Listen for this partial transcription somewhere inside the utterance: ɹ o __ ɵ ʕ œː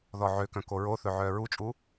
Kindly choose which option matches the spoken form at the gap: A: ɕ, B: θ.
B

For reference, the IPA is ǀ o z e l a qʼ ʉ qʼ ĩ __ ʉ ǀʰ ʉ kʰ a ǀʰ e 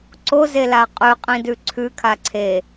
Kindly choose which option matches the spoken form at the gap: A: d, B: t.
A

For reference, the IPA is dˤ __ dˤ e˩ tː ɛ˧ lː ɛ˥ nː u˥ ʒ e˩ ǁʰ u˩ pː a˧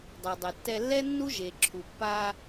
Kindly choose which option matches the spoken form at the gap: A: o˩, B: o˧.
A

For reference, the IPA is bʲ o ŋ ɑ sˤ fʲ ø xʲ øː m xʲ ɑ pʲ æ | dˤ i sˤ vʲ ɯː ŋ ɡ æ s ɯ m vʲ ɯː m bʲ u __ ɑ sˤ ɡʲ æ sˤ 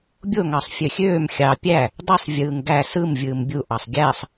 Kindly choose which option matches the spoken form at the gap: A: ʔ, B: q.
A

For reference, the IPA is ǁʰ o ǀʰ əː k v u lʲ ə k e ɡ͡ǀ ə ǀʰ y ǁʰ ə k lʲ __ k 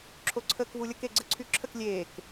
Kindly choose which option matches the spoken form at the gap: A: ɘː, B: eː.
B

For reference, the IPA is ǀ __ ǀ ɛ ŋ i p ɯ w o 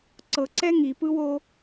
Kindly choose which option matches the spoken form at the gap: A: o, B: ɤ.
B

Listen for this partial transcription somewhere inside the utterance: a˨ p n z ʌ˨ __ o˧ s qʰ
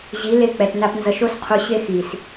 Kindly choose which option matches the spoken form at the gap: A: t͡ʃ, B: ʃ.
B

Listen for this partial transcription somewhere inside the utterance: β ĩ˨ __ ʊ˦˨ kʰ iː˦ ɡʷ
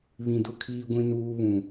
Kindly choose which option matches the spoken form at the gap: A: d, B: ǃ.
A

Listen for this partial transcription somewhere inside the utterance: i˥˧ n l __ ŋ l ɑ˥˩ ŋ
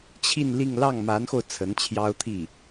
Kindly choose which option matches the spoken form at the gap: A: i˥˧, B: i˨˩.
A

